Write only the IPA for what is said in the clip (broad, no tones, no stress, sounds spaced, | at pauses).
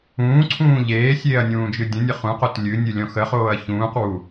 ũː ǀʰ ũː ʎ eː sʲ eː ɐ̯ nʲ ũː d͡ʒ ɨ dʲ ə̃ nʲ ə χ ũ q o t lʲ ɨ nʲ ɨ lʲ ɔ̃ x ə χ oː ɐ̯ ç ũː q w u